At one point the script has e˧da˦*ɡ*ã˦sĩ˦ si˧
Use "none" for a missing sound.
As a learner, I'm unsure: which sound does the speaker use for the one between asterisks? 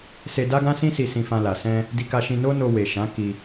ɡ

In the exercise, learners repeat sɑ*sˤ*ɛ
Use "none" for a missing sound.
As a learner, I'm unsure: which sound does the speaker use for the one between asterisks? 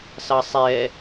sˤ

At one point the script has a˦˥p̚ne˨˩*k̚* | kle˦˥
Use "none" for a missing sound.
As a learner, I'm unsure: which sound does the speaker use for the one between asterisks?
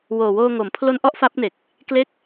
k̚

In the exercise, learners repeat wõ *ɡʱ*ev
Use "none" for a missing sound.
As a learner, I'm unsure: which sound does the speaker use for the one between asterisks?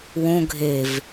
ɡʱ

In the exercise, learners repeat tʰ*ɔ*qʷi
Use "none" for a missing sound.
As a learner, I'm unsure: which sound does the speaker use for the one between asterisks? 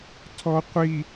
ɔ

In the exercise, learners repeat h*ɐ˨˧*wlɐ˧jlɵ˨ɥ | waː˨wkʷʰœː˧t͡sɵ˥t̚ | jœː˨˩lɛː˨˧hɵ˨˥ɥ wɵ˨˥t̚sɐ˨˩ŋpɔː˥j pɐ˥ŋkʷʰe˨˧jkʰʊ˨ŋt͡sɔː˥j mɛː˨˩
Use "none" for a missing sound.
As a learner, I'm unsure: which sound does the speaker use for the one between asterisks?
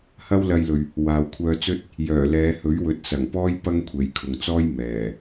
ɐ˥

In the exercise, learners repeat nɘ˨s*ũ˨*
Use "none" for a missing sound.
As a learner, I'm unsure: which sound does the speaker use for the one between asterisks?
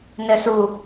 u˨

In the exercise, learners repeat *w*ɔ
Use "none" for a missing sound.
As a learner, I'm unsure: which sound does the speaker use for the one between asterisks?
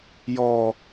j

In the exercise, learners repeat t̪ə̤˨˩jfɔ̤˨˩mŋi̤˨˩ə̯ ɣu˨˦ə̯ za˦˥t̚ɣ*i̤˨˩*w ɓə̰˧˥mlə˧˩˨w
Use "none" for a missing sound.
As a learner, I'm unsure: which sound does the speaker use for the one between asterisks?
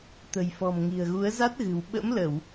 ɨ̤˨˩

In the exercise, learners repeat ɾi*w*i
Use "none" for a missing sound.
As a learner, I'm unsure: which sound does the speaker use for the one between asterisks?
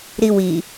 w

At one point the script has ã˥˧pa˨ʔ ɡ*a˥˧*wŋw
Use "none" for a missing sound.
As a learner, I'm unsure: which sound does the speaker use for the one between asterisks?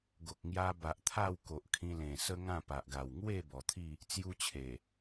a˨˩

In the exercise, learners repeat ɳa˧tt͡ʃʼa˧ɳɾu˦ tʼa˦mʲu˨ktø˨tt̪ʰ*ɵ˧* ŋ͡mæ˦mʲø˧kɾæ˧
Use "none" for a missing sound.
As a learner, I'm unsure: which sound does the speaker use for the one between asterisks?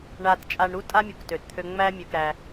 ø˧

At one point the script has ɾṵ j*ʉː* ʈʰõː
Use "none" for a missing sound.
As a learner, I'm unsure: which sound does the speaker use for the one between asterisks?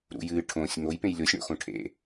ɨː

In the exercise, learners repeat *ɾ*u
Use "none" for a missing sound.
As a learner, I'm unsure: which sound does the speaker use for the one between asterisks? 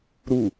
ɾ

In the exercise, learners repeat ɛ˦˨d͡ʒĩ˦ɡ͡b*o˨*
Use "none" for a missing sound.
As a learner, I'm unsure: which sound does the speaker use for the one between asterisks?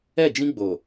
o˨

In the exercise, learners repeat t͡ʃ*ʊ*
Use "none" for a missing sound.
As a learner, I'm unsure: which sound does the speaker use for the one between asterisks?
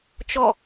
ɔ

